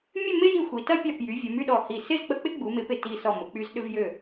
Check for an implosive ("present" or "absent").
present